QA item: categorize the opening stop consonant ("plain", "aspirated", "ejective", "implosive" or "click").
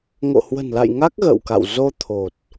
plain